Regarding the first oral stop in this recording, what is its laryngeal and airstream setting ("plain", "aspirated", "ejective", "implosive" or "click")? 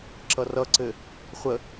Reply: click